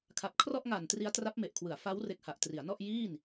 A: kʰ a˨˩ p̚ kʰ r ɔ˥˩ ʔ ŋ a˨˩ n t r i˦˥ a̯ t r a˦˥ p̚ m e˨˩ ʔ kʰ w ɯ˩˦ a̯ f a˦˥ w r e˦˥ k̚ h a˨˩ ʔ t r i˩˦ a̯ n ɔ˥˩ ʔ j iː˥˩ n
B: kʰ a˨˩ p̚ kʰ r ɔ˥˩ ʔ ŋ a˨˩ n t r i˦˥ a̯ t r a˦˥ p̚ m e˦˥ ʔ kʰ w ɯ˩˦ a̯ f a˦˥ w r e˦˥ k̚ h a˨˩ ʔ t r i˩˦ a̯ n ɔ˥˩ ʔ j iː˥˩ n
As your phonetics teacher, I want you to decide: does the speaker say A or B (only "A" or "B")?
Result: A